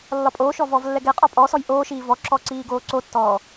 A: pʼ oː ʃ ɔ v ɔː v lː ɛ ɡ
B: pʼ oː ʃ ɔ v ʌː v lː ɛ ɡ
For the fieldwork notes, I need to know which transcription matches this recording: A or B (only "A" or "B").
A